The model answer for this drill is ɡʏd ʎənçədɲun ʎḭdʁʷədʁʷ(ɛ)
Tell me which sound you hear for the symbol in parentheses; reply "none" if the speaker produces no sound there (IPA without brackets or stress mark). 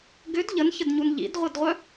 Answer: œ